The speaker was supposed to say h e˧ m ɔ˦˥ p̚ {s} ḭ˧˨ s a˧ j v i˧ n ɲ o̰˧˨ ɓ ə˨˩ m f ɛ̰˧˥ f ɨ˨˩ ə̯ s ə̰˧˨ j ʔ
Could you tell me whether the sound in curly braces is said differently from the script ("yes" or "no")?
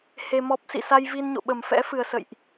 no